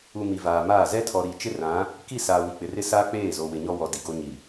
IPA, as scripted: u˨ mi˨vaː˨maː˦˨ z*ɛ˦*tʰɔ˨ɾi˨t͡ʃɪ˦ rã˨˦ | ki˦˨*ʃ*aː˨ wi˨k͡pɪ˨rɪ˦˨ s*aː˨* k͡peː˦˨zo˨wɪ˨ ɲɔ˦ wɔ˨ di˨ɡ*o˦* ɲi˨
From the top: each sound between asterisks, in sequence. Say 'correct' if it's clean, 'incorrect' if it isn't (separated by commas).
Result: correct, incorrect, incorrect, correct